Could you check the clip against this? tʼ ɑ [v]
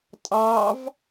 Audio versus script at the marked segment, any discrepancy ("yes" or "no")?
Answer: no